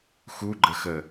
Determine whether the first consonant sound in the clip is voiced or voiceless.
voiceless